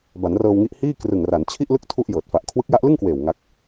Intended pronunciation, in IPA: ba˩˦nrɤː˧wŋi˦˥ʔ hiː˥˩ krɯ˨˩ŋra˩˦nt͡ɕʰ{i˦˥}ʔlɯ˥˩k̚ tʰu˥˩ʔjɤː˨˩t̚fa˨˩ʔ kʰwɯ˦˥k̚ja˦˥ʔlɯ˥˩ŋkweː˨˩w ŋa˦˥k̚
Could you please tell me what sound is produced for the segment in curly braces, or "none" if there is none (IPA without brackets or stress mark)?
i˥˩